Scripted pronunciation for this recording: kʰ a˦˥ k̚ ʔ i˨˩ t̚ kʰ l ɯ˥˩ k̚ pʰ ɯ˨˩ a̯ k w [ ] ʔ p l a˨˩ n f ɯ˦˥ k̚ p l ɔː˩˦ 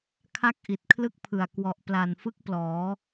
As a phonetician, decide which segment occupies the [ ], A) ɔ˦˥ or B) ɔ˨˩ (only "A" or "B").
B